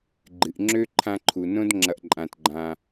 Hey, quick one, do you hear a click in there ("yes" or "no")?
yes